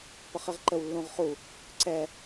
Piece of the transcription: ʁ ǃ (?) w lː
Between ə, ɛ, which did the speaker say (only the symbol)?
ə